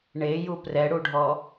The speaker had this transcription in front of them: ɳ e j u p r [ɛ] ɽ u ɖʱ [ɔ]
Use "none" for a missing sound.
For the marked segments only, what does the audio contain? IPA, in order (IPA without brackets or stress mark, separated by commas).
ɛ, ɔ